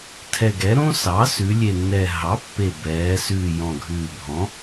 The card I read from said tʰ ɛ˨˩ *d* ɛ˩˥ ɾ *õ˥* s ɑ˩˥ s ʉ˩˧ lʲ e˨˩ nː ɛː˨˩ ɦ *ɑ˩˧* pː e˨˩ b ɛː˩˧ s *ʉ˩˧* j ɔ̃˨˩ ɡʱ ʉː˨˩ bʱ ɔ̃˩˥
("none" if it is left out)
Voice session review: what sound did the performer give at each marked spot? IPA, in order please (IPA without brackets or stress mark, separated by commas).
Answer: ɡ, õ˥, ɑ˩˥, ʉ˨˩